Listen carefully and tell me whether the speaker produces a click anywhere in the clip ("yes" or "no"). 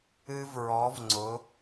yes